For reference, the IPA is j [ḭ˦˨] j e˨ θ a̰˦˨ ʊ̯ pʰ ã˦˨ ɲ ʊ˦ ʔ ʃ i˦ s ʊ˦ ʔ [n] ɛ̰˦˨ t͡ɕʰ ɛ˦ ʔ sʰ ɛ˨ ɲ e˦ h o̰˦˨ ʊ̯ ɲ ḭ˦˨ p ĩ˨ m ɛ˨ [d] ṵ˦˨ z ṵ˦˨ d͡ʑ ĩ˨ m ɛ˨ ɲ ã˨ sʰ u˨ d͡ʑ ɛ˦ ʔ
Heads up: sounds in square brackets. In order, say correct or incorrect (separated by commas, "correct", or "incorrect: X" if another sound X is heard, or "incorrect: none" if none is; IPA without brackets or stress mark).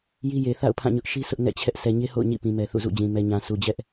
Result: incorrect: i˦, correct, incorrect: θ